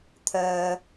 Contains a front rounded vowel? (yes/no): yes